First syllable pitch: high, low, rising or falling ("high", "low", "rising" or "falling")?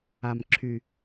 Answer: low